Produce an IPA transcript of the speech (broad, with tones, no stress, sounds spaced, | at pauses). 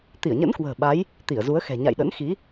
t̪ i˧˩ ə̯ ɲ ə̰˧˥ n k w ə̤ː˨˩ ɓ a˨˦ j | t̪ i˧˩ ə̯ z u˨˦ ə̯ x ɛ̤˨˩ ɲ a̰˧˨ j ɗ ə̰˧˥ n x i˨˦